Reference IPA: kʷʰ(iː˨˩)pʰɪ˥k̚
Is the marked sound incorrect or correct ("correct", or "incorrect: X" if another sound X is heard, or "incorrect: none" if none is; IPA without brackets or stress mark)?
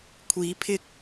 incorrect: iː˨˥